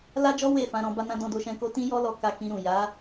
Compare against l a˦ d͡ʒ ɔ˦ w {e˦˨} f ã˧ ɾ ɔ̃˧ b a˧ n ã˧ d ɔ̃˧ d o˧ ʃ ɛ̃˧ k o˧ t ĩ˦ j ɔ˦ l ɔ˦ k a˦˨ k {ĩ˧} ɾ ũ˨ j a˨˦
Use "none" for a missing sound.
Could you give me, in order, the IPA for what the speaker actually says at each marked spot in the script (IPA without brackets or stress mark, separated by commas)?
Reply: e˦˨, ĩ˧